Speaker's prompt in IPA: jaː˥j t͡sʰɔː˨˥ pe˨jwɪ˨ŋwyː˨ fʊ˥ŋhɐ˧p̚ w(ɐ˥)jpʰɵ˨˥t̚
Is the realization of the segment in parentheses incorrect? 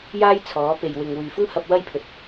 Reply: no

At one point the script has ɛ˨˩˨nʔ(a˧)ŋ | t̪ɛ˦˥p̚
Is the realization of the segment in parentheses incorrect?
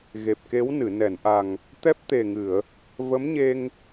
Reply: yes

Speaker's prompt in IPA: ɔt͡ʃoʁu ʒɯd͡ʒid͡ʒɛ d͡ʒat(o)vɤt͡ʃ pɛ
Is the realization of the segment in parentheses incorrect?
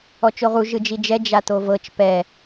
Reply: no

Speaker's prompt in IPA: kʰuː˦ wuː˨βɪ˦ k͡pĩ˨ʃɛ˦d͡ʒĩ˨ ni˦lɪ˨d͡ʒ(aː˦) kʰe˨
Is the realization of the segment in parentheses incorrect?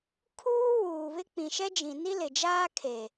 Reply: no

